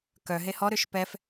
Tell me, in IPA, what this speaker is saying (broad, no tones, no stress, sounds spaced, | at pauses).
k œ ɦ e h ɔ ɾ ø ʃ p ɛ f